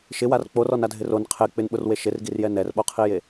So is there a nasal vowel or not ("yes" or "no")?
no